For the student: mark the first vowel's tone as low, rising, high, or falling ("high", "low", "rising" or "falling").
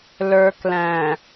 low